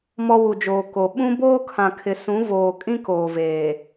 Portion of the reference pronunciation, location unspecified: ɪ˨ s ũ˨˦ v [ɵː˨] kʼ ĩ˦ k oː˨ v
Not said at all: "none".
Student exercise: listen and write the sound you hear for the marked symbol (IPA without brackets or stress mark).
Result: oː˨